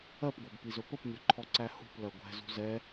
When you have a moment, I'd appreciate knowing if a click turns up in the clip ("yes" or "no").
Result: yes